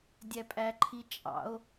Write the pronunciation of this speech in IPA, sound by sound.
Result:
dʲ æ pʼ æ ǃʰ i t͡ʃʼ ɑ̰ o̯

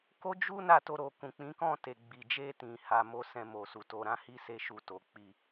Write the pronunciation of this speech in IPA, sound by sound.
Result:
k o˦ d͡ʒ u˦ n a˦˨ t o˧ ɾ o˨ k ũ˨ k͡p ĩ˨˦ k ɔ̃˦˨ t e˨ ɡ͡b i˨ d͡ʒ e˧ t ĩ˨ h a˧ m o˦ s ɛ̃˧ m o˨ s u˨ t o˧ ɾ ã˦ h i˦ s e˦ ʃ u˧ t o˨ k͡p i˧

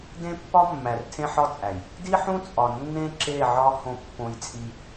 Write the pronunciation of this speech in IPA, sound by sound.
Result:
d ẽ˦ pː ɒ˦ mː æ˨ r tʰ ẽ˦ ħ ɒ˦ t͡sʼ æ˨ j | d i˦ ħ ũ˦ t͡sʼ ɒ˨ nː ẽ˦ ǁ e˦˨ ʕ ɒ˦ h õ˦ pː õ˦ j t͡sʼ i˦

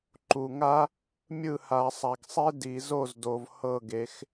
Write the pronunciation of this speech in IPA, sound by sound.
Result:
ǃ u˨ ŋ a˥ | mʲ ɯ˦˨ h a˨˩˦ sˤ a˨ ɡ sˤ e˥ d i˨˩˦ z o˦˨ z d o˨ v h ɤ˦˨ ɡ e˨˦ x

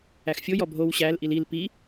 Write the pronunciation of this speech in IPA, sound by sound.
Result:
æ x fʲ o j ɔ bʱ o w ɕ æ l ʔ i l i l p i

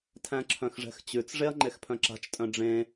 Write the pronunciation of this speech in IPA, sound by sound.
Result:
tʰ æ̃ ǁʰ œ̃ x ʐ ɛ̤ x t͡ɕ ʉ t͡s ʐ e ɐ̯ ŋ͡ǃ e x pʰ œ̃ ǁ a̤ t͡ʃ tʼ œ̃ ɖ͡ʐ ẽ

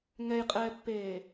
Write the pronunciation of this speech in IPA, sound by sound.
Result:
ŋ ɛ j qʼ ɛː pː eː

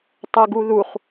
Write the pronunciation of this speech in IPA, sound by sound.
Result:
tˤ e ɡ u ð u χ

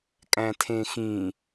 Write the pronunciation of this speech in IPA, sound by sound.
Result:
kʼ æ̃ tʰ ẽ x ĩ

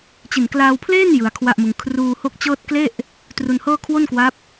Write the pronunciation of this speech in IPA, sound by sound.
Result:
t͡ɕ i˨˩ n k l aː˧ w pʰ l eː˥˩ n j ɯ˧ a̯ kʰ w a˥˩ ʔ m ɯ˧ ŋ kʰ r uː˧ h o˦˥ k̚ t͡ɕ ɤː˥˩ t̚ k l e˥˩ ʔ | t r u˧ n h ɤː˥˩ kʰ w o˥˩ n k w a˦˥ p̚

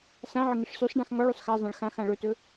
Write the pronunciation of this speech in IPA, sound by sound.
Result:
s ã ʕ ə ŋ ɪ ʂ s ʉ sˤ ɖ ã x ŋ ɔ ɭ ʉ sˤ x a zˤ ã ɭ x ã x ã ɭ ɵ t ɵ

